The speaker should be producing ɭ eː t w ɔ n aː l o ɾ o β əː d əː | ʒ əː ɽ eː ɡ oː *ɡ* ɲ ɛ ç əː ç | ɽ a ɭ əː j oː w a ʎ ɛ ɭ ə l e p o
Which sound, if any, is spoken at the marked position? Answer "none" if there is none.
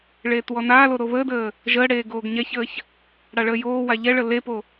ɡ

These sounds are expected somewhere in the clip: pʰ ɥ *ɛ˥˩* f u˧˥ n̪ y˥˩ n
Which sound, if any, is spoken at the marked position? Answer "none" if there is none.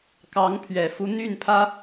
ɛ˨˩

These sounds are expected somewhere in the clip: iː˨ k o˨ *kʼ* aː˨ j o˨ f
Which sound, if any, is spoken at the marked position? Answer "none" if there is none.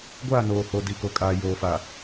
kʼ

